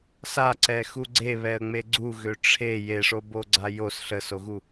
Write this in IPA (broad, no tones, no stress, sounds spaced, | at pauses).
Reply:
s a ǀ ɛ x u ɡ͡ǀ e β ɛ ə̯ ŋ͡m e ɡ͡ǀ u ɣ ø ʈ͡ʂʰ e j e ʂ o b o ɡ͡ǀ a j o s ɬ ə s o ɣ u